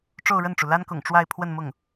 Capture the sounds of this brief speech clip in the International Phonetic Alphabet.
ʈ͡ʂo˥˧ʊ̯ɻə˥˩nʈ͡ʂu˩ la˥nkʊ̰˨˩ŋ ʈ͡ʂwa˥˧ɪ̯ pʰwə˥˧n mʊ˥˩ŋ

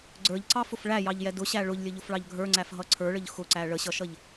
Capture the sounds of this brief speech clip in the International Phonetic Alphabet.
ɡ͡ǀə˞ʎǀɑfʊf ɭæjɑʎjɛ dʊɕæ ɭʊʎlʲəʎʊfɭɑʎ ɡʱə˞ŋ͡ǀæfɦʌ ǀʰə˞ɭəʎ xʊǀæ ɭəɕʌʃʌʎ

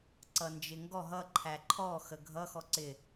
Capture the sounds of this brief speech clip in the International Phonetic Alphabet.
ǀʌnd͡ʒɪŋɡɔ ɦʌ ǃʰæǃʰɔ xəɡʱʌ xɔǀɪ

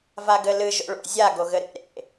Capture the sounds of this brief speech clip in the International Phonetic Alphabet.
vaɡɘlɨ ʒo̰ɭo̰ zʲa ɡoɣɘɾḛ ɾḛ

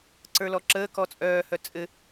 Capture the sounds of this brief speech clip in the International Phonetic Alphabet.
ǀə˞lɔǁəː kɔt͡sʼœː hœt͡sʼɘ

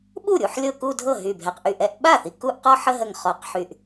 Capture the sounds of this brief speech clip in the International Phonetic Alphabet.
ɓu˥˩ɾʲu˥˧ħ lʲɤ˥˧ku˥˧dʱɤ˥˩ ɦy˧˩bʱɛ˧˩qʔy˥˩ ʔɛ˥˧ʔ ɓa˥˩θi˧˩ ku˥˧ʔ qɔ˥˧ħə˥˧ɦə˧˩ŋ χɔ˧˩qħy˧˩ʔ

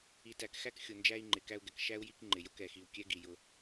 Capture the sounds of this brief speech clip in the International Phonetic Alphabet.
i˨tæ˨kxæ˦kxʲʊ˨ nd͡ʒæ˦i̯ŋ͡ǃɪ˨kæ˦u̯ɡɛ˨k ʃæ˦u̯ ji˦kŋ͡ǃɪ˨ jʊ˦kɛ˨ xi˨u̯kʲɛ˦ɡi˨ jʊ˦

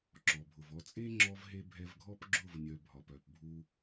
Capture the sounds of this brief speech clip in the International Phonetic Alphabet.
ǁɔ˨bʱʊ˨v ɔ˧t͡sʼe˦ŋ͡ǁɔ˧vɦe˧ bʱɛ˧vɡʱɔ˦pɡ͡ǁʊ˦˨vnʲœ˨ bʱɒ˨pœ˨pbʱu˧

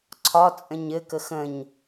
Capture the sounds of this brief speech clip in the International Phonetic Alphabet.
ǀʰɒt͡sʼə̃ɲ ɘkə xə̃ɲ

